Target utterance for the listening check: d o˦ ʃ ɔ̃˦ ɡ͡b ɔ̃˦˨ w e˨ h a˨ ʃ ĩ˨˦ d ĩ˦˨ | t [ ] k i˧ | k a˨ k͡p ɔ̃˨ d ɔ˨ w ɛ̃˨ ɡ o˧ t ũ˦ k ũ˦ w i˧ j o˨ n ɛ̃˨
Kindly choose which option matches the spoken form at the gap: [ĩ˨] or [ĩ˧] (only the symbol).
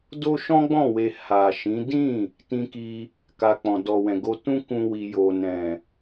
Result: ĩ˧